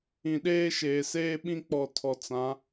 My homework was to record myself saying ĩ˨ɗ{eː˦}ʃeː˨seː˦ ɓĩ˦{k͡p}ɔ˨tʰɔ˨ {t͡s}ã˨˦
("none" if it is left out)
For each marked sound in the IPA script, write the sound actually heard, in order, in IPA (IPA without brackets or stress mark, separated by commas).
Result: eː˦, k͡p, t͡s